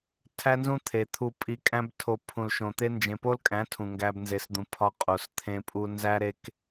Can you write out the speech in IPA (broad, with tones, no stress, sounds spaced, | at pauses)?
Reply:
tʰ æ˦ n z ũ˦ t̪ʰ e˨ t̪ʰ u˧ pʼ i˧ kʼ æ̃˦ b tʰ o˧ pʰ ũ˨ l ʃ õ˨ t̪ e˦ n d͡ʒ ẽ˨ p o˦ l kʼ æ̃˨˦ tʰ ũ˨ ŋ ɡ æ˧ b n z e˨˦ s d̪ ũ˨ pʰ ɒ˦ qʼ o˨ s t̪ʰ ẽ˧ pʼ u˧ n z æ˦ ɾ e˦ k